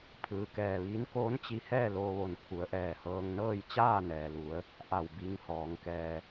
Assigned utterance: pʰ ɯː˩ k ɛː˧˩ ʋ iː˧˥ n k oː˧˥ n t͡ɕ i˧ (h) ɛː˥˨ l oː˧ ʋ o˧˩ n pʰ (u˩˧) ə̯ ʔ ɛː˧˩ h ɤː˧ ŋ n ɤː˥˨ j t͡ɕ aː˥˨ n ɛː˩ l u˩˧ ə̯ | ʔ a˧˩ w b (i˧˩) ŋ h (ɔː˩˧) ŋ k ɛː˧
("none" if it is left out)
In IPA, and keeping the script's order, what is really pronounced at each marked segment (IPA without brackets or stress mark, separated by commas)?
h, u˩˧, i˧˥, ɔː˩˧